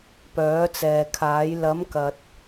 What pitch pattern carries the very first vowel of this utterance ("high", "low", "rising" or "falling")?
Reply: rising